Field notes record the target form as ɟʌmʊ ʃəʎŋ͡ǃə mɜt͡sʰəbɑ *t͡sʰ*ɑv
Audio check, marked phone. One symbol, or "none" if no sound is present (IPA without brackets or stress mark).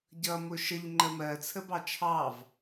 t͡ʃʰ